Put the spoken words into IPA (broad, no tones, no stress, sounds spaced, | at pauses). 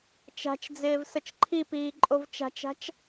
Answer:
t͡ʃ a̤ t͡ʃ d͡z ɪː v s ə t͡ʃ ǃʰ i p iː ǃʼ o v t͡ʃ a̤ t͡ʃ a̤ t͡ʃ